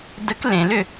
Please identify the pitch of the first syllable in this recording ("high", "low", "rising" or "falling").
rising